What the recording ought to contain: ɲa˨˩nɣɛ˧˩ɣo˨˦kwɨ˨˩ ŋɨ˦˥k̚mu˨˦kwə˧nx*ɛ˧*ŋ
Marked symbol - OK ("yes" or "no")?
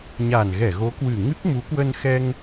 yes